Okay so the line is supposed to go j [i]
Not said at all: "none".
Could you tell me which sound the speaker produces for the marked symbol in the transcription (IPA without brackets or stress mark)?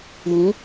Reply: ĩ